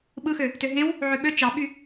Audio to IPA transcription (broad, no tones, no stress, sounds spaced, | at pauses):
ɓ ɯ x ø | t ø ɦ ẽ w | ʕ ø ɓ ø t͡ʃ ɑ ɓ y